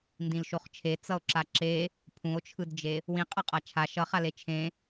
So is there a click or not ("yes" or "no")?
yes